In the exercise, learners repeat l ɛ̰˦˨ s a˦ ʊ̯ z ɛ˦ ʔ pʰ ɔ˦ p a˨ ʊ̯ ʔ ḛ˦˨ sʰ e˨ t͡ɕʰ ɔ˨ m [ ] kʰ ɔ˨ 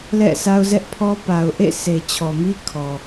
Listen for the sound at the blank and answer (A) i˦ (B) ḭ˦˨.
A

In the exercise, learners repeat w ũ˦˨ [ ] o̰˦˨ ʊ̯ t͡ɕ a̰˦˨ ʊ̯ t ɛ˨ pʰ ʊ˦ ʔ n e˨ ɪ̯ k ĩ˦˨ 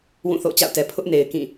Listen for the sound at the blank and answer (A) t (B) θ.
B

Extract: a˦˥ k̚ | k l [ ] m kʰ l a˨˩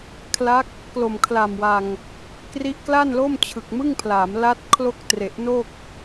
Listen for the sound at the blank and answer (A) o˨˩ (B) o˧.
A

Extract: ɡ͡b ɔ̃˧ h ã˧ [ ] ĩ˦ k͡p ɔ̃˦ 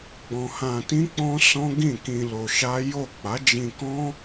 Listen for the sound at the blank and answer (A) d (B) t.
B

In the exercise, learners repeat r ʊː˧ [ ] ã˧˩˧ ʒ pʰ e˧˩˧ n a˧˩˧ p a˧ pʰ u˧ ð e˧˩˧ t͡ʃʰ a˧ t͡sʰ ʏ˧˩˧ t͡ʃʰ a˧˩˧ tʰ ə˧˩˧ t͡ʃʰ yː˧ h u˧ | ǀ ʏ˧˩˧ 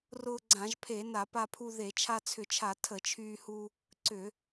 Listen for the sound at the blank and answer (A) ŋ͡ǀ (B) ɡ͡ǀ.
B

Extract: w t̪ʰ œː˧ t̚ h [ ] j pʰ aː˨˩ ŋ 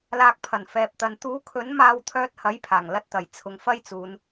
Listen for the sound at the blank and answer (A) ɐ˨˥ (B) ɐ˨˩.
A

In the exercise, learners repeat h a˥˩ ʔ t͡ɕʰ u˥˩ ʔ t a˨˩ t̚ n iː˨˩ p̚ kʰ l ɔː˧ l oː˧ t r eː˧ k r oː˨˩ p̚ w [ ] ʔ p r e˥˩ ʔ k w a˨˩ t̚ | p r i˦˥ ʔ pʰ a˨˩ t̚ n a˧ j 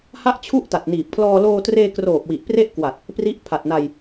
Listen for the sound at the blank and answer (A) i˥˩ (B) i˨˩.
B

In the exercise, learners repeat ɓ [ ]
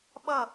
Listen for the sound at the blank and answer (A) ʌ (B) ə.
A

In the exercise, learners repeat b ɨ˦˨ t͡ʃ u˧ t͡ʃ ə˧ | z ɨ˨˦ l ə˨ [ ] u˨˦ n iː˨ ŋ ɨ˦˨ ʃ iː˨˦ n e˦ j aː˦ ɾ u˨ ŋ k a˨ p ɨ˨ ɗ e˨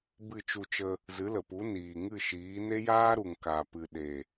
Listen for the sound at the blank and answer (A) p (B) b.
A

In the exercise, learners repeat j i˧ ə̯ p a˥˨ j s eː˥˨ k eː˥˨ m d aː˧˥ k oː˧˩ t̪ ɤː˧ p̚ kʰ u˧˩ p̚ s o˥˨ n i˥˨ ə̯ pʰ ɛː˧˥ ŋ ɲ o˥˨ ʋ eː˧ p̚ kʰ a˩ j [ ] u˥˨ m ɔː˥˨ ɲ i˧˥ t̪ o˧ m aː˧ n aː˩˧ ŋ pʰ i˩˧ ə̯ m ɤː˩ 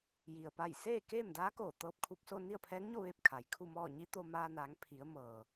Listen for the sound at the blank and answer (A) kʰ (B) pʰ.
A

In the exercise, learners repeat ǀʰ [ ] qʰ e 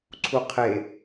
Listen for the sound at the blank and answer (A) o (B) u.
B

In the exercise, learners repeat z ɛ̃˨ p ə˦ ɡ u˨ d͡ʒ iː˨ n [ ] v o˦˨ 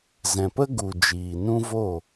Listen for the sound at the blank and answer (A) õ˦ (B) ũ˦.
B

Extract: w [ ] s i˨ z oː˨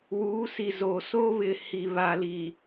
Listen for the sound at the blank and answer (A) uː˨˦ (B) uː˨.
A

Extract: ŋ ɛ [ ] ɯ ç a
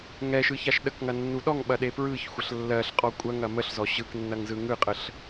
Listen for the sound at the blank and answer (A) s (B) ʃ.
B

